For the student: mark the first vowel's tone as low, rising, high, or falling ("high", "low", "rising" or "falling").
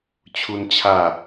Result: high